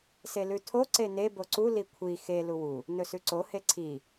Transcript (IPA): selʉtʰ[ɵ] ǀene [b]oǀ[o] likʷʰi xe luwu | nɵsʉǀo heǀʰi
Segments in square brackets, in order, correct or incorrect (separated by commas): incorrect, correct, incorrect